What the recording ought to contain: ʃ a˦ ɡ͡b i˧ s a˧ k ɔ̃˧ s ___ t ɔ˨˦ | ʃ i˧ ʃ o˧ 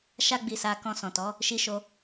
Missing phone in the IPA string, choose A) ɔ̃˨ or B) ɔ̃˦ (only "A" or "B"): A